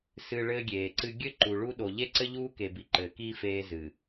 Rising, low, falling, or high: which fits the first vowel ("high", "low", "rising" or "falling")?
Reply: low